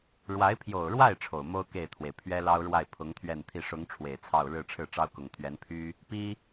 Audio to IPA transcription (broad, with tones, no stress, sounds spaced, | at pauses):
ɻ w a˧˥ ɪ̯ pʰ j o˨˩ ʊ̯ ɻ w a˥˩ ɪ̯ ʈ͡ʂʰ o˨˩ ʊ̯ m o˥ ʊ̯ k e˥˩ ɪ̯ t̪ʰ w e˩ ɪ̯ pʰ ɥ ɛ˥ l ɑ˥ ʊ̯ ɻ w a˥˩ ɪ̯ pʰ ʊ˧˥ ŋ t̪ʰ ɥ ɛ˥˧ n t̪ʰ i˥˩ ʂ ʊ˧˥ ŋ ʈ͡ʂʰ w e˨˩ ɪ̯ t͡sʰ ɑ˥˧ ʊ̯ ɻ ɻ̩˥˧ ʈ͡ʂʰ ɻ̩˥˩ ʈ͡ʂ ɑ˥ ʊ̯ k ʊ˨˩ ŋ t̪ʰ ɥ ɛ˧˥ n pʰ y˥ | p i˥